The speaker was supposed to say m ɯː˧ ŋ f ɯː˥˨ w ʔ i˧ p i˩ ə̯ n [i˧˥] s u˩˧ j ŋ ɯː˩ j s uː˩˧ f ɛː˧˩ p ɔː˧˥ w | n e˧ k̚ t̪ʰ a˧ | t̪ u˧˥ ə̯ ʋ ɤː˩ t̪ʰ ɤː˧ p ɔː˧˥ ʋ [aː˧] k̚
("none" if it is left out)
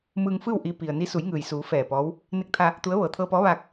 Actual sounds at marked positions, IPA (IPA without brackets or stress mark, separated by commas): i˧˥, aː˧